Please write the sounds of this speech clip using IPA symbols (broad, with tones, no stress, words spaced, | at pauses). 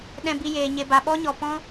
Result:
ɗɛ̃˧bi˧jeː˨ ɲe˨ba˨ɓɔ˦ɲɔ˨ pɔ̃˦